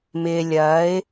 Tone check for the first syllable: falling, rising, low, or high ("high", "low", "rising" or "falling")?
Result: low